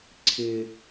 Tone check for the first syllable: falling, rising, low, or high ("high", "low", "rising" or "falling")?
low